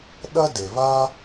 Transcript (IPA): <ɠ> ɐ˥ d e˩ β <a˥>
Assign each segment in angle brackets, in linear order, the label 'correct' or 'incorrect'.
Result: incorrect, correct

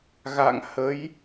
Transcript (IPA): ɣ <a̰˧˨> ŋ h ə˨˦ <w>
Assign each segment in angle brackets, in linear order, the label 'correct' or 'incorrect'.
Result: correct, incorrect

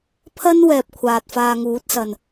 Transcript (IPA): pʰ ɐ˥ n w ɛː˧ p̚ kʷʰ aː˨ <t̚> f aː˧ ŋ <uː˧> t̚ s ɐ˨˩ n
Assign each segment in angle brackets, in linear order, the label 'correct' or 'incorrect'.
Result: correct, incorrect

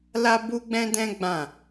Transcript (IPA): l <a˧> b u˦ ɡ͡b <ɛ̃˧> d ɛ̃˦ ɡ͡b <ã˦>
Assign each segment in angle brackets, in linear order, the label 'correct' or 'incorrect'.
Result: incorrect, incorrect, incorrect

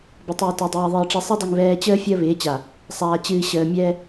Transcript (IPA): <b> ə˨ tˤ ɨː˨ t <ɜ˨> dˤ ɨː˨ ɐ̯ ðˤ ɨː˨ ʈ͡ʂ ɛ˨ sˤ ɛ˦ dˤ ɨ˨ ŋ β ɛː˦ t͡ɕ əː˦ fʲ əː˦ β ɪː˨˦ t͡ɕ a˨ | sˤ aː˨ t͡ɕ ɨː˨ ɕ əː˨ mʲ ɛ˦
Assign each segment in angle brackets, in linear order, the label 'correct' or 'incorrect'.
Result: correct, correct

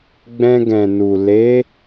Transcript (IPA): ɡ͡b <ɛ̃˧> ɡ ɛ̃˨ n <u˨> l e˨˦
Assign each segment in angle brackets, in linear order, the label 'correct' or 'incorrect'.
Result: correct, correct

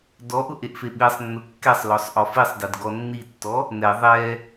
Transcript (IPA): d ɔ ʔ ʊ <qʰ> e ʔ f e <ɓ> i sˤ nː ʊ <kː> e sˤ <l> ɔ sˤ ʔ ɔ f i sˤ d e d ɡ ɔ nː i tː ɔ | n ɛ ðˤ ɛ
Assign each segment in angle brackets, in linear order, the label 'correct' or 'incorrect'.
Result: incorrect, correct, correct, correct

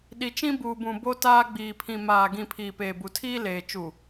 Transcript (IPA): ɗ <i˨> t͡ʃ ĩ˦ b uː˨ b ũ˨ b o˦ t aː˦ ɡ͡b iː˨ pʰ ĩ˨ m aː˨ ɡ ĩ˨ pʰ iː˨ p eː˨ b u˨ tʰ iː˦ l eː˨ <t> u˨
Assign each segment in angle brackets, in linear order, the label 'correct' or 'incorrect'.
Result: correct, incorrect

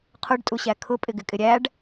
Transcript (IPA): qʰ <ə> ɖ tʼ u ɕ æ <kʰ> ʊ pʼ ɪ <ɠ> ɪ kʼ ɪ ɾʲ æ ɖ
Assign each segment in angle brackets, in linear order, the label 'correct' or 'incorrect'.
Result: incorrect, correct, incorrect

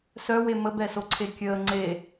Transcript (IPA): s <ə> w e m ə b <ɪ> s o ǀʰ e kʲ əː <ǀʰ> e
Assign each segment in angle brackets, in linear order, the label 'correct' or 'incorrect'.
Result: incorrect, incorrect, incorrect

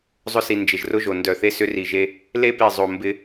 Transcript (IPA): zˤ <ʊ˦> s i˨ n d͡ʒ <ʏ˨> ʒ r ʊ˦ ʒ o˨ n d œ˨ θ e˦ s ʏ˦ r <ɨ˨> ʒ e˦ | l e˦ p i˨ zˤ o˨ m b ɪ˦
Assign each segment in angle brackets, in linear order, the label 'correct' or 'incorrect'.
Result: correct, incorrect, incorrect

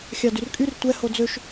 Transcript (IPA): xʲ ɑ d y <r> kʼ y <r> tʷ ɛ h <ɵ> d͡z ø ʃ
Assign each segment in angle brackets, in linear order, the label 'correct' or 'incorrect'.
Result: correct, correct, incorrect

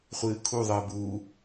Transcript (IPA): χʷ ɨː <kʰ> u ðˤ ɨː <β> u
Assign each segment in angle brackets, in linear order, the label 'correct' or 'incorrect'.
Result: correct, incorrect

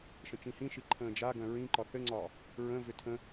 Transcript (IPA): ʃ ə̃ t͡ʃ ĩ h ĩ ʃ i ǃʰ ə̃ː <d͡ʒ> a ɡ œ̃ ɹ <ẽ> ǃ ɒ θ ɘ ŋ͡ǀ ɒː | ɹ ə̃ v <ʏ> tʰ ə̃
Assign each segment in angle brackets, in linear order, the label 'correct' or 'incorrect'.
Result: correct, incorrect, correct

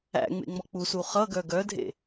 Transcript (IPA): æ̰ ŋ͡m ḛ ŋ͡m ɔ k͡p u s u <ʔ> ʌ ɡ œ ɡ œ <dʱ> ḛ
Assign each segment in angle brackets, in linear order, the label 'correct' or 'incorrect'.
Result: incorrect, correct

